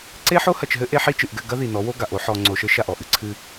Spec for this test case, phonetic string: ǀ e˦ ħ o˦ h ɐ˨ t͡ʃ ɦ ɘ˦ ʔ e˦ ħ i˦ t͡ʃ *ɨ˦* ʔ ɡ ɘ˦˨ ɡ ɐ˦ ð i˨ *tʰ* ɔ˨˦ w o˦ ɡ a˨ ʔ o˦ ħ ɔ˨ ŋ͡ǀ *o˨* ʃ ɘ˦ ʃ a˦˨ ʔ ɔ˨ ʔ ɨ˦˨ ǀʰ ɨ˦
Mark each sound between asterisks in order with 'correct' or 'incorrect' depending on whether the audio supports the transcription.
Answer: incorrect, incorrect, correct

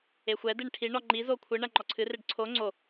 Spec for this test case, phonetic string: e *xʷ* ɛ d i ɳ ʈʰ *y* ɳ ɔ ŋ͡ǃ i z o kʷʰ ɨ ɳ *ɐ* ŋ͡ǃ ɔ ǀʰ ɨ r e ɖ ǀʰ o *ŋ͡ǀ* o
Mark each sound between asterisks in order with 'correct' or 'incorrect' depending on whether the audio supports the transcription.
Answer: correct, incorrect, correct, correct

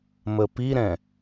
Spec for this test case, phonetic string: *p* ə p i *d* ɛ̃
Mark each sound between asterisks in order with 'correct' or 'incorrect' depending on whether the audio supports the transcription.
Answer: incorrect, incorrect

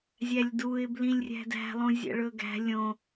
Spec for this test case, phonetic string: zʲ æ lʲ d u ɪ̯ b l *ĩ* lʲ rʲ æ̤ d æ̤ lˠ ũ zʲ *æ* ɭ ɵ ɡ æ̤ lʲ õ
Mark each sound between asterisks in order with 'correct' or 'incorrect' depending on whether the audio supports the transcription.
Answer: correct, incorrect

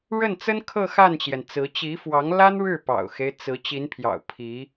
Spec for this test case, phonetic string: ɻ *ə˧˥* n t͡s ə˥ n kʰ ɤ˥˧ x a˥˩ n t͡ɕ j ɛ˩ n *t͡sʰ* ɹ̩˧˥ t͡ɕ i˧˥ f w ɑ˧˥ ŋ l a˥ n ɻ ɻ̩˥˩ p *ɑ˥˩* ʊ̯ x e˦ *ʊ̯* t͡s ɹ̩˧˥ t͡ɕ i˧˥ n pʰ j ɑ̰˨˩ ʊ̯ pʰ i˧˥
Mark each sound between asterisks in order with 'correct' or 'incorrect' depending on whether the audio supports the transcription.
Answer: incorrect, incorrect, incorrect, incorrect

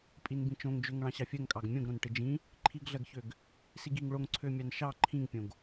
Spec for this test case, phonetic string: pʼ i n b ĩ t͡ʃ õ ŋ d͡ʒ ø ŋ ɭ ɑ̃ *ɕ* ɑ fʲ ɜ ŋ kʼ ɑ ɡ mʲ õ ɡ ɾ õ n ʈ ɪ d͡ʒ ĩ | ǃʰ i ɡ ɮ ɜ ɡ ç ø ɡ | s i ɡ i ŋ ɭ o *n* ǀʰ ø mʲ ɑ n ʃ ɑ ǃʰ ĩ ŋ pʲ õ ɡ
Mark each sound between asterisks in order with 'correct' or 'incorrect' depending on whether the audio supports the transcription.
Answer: correct, incorrect

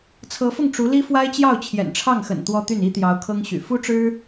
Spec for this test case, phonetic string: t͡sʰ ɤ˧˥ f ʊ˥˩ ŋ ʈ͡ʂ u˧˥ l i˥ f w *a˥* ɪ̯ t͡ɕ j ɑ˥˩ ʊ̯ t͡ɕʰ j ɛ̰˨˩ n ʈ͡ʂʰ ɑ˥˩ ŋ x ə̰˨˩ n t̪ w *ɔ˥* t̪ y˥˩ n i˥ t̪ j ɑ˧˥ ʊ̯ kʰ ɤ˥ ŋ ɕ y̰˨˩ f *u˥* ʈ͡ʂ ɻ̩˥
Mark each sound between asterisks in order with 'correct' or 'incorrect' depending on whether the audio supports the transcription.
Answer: correct, correct, correct

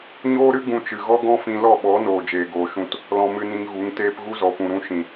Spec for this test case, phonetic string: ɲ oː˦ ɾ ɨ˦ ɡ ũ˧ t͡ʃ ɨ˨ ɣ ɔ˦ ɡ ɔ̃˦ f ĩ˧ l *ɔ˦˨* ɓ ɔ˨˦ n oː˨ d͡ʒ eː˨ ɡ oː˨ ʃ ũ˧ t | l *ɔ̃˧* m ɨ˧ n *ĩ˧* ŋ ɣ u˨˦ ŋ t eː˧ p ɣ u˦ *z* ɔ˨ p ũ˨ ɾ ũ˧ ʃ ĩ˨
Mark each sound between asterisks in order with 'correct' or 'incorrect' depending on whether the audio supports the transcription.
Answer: correct, correct, correct, correct

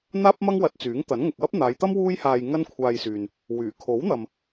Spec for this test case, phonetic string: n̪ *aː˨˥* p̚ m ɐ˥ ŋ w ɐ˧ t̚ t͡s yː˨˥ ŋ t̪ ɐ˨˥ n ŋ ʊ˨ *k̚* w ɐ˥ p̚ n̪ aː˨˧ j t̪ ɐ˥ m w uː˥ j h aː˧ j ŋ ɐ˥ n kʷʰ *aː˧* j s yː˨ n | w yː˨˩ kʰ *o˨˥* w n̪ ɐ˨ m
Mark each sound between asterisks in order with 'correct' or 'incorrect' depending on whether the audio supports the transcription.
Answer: incorrect, correct, correct, correct

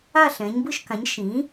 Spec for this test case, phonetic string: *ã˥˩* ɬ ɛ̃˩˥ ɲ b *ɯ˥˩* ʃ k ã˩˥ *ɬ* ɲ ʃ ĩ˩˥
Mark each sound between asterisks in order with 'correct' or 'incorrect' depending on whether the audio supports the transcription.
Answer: incorrect, correct, incorrect

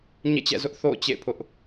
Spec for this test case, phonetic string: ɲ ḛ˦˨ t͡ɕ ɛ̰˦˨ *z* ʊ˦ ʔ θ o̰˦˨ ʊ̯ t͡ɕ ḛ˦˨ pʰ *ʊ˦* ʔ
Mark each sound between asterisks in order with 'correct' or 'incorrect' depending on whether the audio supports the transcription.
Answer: correct, correct

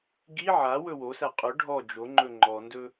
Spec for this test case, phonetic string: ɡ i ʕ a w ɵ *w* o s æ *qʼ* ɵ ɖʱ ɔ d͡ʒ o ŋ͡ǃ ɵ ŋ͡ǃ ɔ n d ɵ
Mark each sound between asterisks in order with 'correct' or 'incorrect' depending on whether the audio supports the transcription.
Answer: correct, correct

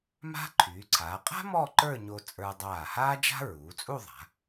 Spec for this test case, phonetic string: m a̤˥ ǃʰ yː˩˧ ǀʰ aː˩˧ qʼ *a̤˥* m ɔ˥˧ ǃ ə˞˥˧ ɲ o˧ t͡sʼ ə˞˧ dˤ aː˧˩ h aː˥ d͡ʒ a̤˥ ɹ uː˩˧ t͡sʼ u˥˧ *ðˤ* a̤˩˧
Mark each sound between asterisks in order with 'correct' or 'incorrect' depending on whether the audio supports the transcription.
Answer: correct, correct

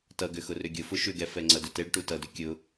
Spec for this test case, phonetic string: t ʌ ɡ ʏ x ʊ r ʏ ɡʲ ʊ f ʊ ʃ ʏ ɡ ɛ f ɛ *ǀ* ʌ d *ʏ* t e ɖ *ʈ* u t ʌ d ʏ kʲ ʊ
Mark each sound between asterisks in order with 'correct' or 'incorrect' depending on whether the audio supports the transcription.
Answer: incorrect, correct, correct

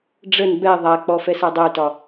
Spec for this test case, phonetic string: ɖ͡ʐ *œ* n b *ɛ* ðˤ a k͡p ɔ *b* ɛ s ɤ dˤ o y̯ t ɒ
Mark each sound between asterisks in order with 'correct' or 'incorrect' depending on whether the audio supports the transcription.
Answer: incorrect, correct, incorrect

